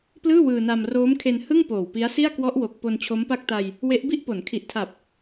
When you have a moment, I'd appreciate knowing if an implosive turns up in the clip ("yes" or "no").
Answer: no